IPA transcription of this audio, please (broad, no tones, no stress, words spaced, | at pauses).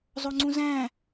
zˤoŋ͡ǀũzæ̃